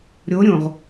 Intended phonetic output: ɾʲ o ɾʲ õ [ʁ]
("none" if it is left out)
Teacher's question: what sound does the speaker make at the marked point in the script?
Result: ʁ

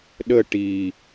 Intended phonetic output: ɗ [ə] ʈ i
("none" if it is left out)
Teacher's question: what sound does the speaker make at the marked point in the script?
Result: ə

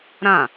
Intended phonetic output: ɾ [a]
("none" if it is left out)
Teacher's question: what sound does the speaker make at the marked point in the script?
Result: ã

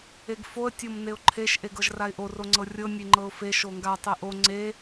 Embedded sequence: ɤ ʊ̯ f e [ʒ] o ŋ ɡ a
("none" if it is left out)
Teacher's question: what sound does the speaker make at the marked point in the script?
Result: ʃ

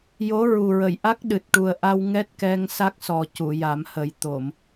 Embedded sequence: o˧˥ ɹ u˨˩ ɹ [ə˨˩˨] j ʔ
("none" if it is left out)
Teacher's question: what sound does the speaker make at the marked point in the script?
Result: ə˨˩˨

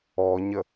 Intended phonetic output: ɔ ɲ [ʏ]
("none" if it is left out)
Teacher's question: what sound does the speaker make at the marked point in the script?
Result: ə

